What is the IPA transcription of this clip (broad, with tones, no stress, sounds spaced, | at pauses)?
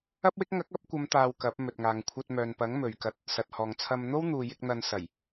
ɐ˥ p̚ w ɪ˥ k̚ ŋ ɐ˨˥ k̚ ɐ˨˥ p̚ kʷ ɐ˨˧ m t̪ aː˧ w k ɐ˨˥ p̚ m ɵ˨ t̚ ŋ aː˨ ŋ kʷʰ ɐ˧ t̚ m œː˨ n p ɐ˨˥ ŋ m ɵ˨ ɥ k ɐ˧ t̚ | s ɐ˨ t̚ h ɔː˨ ŋ t͡sʰ ɐ˧ m n̪ o˥ w n̪ uː˨ j ɪ˧ k̚ n̪ ɐ˧ n s ɐ˨˩ j